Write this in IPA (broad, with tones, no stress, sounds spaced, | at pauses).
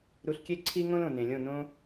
ɾ u˧ ɬ kʲ e˦ ǀʰ i˦ ŋ õ˦ l õ˨ n ẽ˨ lʲ õ˦˨ n õ˦